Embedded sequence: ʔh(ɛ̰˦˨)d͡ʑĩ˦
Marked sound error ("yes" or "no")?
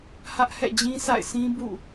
no